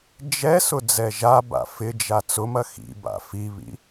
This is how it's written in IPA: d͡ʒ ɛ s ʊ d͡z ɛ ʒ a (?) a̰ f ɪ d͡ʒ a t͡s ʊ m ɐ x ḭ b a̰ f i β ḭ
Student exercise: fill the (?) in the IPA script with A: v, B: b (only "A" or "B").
B